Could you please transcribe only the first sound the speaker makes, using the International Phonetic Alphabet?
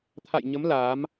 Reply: t̪ʰ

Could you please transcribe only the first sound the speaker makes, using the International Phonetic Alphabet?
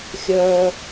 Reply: xʲ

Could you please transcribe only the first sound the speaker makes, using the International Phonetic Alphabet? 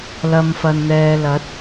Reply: l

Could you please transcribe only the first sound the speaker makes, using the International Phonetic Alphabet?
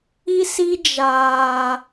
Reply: i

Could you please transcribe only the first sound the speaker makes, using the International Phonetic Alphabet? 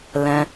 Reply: l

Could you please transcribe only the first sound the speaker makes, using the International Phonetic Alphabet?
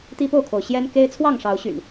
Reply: t̪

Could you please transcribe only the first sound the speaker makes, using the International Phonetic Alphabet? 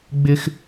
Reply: ɡ͡b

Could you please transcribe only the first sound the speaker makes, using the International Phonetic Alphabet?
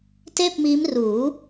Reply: t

